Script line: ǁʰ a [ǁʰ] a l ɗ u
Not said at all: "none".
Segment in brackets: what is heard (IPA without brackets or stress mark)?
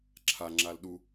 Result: ŋ͡ǁ